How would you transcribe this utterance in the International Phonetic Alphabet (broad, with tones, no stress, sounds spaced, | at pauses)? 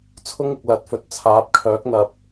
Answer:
t͡sʰ ʊ˥ ŋ ɪ˨ k̚ l ɐ˨˥ t̚ f ɵ˨ t̚ t͡sʰ aː˨˥ p̚ kʰ œː˨˥ k̚ n̪ ɐ˨ p̚